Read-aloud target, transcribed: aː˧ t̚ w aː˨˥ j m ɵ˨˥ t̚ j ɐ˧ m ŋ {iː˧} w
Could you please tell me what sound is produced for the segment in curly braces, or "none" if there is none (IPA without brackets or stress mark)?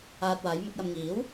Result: iː˨˥